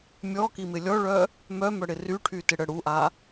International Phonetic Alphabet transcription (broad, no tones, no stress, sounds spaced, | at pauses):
mʲ ɔ k i m ɪ lʲ ɔ ɭ œ | m œ m œ ɽ ɪ r y ʈʰ y t ɪ ɽ ə ɽ u ʔ a